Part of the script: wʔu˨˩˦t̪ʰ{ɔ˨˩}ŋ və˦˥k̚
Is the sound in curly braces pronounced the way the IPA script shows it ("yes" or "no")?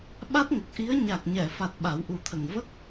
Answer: no